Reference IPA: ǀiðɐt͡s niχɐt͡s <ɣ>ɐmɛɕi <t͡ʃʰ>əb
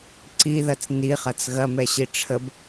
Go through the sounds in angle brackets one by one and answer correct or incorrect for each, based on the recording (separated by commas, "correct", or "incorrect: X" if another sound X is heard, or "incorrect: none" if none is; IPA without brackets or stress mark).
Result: correct, incorrect: ʈ͡ʂʰ